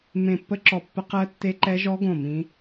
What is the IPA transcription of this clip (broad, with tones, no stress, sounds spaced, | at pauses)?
m ẽ˦˨ pː ə˦˥ ǁ ɔ˦˨ pː ə˦˥ q ɜ˦˥ tː e˦˥ ǃ ɛ˦˥ ʒ ɔ˦˥ ɡ õ˦˨ m ĩ˦˥